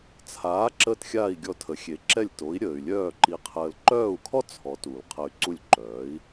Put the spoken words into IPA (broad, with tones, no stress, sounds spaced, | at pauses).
t͡sʰ aː˩˥ ǁ əː˥˩ t xʲ aː˥˩ i̯ ɡʲ ɔ˧ tʰ ə˩˥ xʲ e˩˥ ǁ ɛ˥˩ lʲ t o˩˥ i̯ ɾʲ əː˩ y̯ lʲ œː˥˩ ǃ i˧ qʰ əː˧ l ǃ œː˥˩ u̯ kʰ ɔ˥ t͡sʰ ɔ˩˥ t u˩ l qʰ ə˧ y̯ ǀ u˥˩ lʲ ǃ œː˩˥ i̯